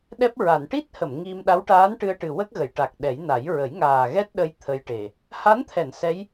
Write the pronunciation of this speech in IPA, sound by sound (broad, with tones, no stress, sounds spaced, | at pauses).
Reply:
ɗ ɛ˦˥ p̚ ɹ a˨˩˨ n ʈ i˦˥ t̚ h ə˨˩˨ m ŋ i˧ m ɗ a˧˥ w ʈ aː˧˥ n ʈ ɨ˧ ə̯ ʈ ɨ˨˩ w ə˦˥ k̚ ɣ ə˨˩˨ j ʈ a˨˩ k̚ ɗ ɛ˨˩˦ j n a˨˩˦ j ɹ ə˨˩˦ j ŋ aː˨˩ ɣ ɛ˦˥ t̚ ɗ ə˧ j t̪ʰ ə˧ j ʈ e˨˩ | h a˧˥ n t̪ʰ ɛ˨˩˨ n s ɛ˧˥ j